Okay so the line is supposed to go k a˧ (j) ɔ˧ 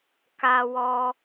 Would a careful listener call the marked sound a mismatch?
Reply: yes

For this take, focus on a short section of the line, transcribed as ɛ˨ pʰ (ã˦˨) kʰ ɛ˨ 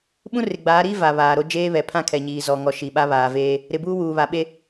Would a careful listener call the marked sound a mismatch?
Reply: yes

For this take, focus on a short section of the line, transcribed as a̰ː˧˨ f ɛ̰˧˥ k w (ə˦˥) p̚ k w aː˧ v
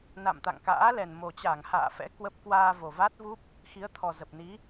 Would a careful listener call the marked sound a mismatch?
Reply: no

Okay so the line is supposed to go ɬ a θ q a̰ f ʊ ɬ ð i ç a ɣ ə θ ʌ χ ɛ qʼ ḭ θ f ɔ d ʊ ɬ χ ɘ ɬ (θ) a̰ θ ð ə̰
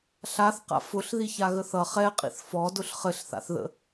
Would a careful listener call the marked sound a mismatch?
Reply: no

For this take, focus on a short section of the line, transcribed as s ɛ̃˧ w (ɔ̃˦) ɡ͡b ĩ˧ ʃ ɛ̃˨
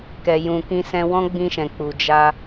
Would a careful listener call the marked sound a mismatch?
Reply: no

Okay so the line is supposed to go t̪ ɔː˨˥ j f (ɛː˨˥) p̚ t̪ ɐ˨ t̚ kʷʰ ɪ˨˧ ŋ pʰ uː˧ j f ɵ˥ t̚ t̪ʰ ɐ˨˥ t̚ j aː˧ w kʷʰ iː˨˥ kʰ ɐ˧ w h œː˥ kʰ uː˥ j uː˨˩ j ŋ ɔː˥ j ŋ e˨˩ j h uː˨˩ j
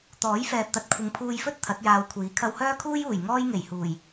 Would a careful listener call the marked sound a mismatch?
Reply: yes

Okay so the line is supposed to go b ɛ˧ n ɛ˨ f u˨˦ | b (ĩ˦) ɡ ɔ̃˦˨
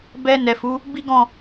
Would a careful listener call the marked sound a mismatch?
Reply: yes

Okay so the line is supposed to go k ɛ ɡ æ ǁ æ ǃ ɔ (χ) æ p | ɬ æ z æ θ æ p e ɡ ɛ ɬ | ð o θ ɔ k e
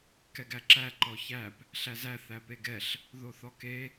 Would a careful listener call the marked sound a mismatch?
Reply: yes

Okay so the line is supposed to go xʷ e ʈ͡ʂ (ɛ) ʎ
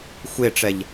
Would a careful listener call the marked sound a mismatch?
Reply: no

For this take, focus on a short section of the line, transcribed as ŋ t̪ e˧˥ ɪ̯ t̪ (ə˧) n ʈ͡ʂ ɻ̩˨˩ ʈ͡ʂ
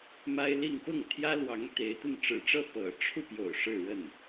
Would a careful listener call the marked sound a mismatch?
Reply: yes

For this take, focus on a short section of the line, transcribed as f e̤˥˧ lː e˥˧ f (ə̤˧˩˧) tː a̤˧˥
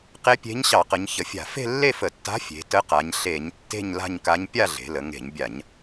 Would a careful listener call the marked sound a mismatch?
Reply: yes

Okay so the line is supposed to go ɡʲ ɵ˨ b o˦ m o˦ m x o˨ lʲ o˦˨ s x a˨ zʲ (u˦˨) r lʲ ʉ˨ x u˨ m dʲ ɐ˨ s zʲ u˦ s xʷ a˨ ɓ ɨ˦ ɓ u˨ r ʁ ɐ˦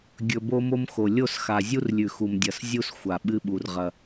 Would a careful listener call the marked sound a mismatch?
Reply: yes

